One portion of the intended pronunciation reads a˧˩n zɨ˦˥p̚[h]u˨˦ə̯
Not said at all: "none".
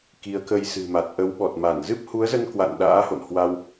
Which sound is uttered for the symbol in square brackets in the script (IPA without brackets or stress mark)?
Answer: h